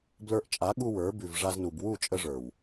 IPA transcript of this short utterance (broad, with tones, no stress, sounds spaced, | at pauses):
b l ə˞˧ ʔ t͡ʃʼ a˨˦ ɠ u˧ w ə˞˨˦ b ʉ˨ v ʐ a˧ z n u˨ b w u˦˨ t͡ʃʼ ə˧ ʐ ə˞˨ w